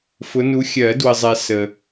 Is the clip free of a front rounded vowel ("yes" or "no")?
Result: yes